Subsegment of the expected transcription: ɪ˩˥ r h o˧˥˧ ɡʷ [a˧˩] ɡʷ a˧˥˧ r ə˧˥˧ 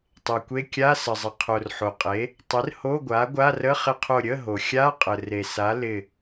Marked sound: incorrect: a˩˥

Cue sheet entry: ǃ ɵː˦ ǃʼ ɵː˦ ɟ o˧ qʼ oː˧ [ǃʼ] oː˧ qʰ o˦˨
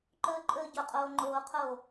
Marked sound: incorrect: ŋ͡ǃ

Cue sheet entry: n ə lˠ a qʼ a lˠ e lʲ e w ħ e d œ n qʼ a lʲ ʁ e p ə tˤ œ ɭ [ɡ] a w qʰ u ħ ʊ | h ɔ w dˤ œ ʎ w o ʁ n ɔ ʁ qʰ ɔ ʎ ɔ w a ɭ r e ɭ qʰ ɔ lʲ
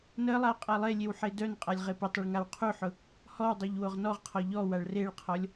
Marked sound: incorrect: ŋ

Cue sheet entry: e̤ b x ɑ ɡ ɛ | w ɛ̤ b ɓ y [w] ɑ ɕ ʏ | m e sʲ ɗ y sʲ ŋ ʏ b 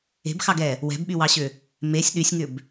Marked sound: correct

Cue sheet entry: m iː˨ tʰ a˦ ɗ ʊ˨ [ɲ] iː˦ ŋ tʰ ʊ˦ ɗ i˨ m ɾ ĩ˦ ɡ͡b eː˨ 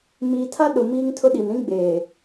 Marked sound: incorrect: m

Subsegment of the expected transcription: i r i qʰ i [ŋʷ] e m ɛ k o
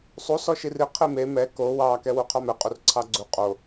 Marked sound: incorrect: m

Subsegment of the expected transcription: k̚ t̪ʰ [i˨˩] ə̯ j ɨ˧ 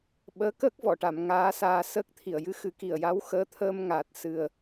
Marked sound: correct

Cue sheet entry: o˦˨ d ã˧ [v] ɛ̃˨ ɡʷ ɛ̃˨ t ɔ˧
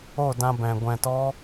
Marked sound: incorrect: b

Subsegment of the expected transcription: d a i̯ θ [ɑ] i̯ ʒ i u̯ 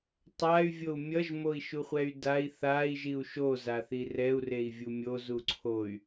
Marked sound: incorrect: a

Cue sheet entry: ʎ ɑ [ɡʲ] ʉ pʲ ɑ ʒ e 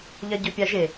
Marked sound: incorrect: ɟ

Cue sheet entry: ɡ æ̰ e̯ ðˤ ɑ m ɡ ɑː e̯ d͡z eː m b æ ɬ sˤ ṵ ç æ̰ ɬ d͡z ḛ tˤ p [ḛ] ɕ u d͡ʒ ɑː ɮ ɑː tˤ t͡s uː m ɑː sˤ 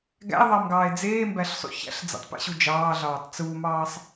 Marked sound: correct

